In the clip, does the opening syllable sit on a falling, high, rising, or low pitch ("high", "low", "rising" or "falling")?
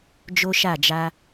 high